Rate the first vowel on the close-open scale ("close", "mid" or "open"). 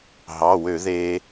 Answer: open